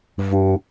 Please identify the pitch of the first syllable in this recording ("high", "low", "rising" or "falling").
high